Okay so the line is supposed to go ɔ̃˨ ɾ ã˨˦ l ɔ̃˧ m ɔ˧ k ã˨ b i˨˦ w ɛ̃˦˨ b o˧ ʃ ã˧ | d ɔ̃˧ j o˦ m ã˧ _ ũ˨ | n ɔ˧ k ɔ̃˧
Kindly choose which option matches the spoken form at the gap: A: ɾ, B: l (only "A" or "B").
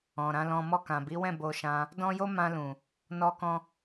B